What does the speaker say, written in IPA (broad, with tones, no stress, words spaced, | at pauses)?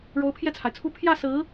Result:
ɻo˧˥ʊ̯pʰjɛ˥˩t͡sʰa˩ɪ̯t͡sʰu˥ pʰjä˥˩sɹ̩˧˥